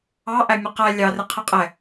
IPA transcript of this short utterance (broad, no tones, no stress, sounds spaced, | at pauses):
ɑ ʔ æ mʲ ʌ q æ lʲ ɑ r ɪ qʰ ɛ qʼ ɛ